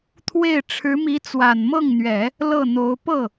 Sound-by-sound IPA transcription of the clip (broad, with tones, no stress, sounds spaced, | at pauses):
t̪ʰ w e˥˩ ɪ̯ ʈ͡ʂʰ ɻ̩˧˥ m i˧˥ t͡s w a˨˩ n m ɤ˥˩ ŋ n̪ ɥ ɛ˨˩˦ | l ɤ˥˩ n̪ o˧˥ ʊ̯ p ɤ˥˩